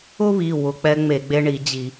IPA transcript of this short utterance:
ʊ˦βi˩˧˩ wʊ˩˧˩k͡pɛ˦ ŋ͡me˧˩˧ɡ͡be˦ɳi˧˩˧d͡ʑi˧˩˧

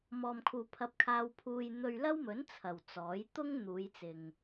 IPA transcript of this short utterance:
mɔː˨mkʰuː˨ pʰɐ˧p̚kʰaː˧wpʰuː˧j n̪ɵ˧ɥlɐ˥wmɵ˨˥n t͡sʰɐ˨wt͡sɔː˨˥j t̪ʊ˥ŋ n̪uː˨˧jt͡sɪ˨ŋ

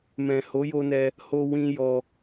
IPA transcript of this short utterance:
mɛ̃˨ho˨˦jo˧nɛ˧ | ho˧wĩ˧ jɔ˧

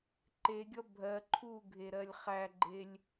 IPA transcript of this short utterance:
ǃeɡʲʌ bʱɜ ǃʰuɡʱeɾɜlʲ χæɡ͡ǃelʲ

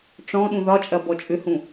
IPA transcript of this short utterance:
ʈ͡ʂɔ̃ ɗũðɒt͡ʃʼɐ bɔt͡ʃʼʏhũ

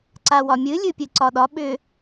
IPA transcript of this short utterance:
ǀawɒmʲɨ lʲɨpʲɨǀɒɗɒ ɓʏ

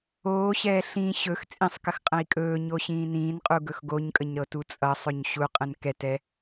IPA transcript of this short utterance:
oːɕɛː ɬĩ ɕɵx t͡sʼĩsˤkəx qʼə̃i̯kʼɵːɲo ɕĩːnĩːnqʼu ɡɵxɡoɲkʼəɲ ɾɤtut͡sʼʌsˤɵɲ ɕuqʼə̃n kɛtɛ

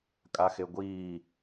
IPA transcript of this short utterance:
kʼaxeɡʷiː

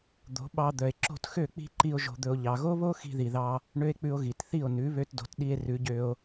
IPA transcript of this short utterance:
d̪o̤˨˦ɓɑ˧ d̪œ˨e̯ǁo̤˦˨txø˦˨ k͡pi̤˦ǃi˧o̯ ʒo̤˧d̪ɵ˧o̯ ʎɑ˨ɣo˦βo˦ xi̤˧ði˨ðɑ˧ | ɳø˦e̯k͡pʉ˧o̯ɣi˨tθi˦˨o̯ nʉ˨˦βø˧tdo̤˨tɗi˧e̯ rʉ˨˦ɟø˧o̯

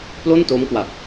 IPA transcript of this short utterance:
plo˥˩nto˦˥mkwa˨˩p̚

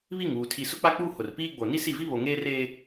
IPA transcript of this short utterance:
βi˦˨ŋuː˨ tʰi˨ sʊ˦k͡pa˦k͡puː˦ hʊ˨rpiː˦ɡ͡bo˨ ni˦si˦˨vi˦ βo˨ŋeː˦reː˦

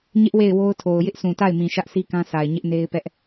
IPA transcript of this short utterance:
ɲɪ˦ʔ we˦˨ɪ̯wo˦ʊ̯tʰo˨ʊ̯ jɪ˦ʔsʰũ˨ta˦˨ɪ̯mĩ˨ ʃä˦ʔsʰi˦kã˦sʰa˨ɪ̯ ɲɪ˦ʔne˦ɪ̯pɛ˦ʔ

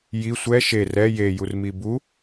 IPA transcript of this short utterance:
ji sʷɛ ʃe rɛ je jurmibu

